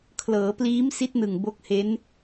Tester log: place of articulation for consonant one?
velar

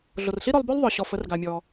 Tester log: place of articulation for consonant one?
alveolar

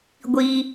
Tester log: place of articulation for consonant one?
velar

